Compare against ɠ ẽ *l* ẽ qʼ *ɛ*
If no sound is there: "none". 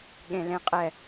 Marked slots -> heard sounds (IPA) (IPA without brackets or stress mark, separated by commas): l, ɛ